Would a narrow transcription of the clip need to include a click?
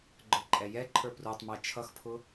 yes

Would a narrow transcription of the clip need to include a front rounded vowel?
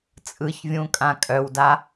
yes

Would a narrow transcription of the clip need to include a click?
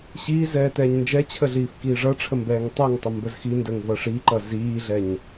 yes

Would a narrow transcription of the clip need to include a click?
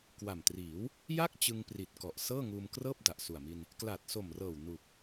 no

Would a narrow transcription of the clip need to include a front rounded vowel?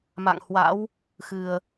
no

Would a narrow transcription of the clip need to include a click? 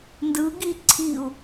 yes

